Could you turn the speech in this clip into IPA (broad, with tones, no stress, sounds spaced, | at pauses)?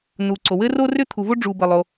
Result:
n u˩ ǀ o˩ w ɘ˥ r o˥ r ʏ˥ t̪ʰ u˩ v o˥ ɖ͡ʐ u˩ b ɘ˩ lˠ o˩